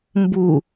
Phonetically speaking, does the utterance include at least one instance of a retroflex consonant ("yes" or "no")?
no